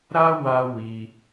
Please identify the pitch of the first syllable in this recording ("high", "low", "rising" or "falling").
high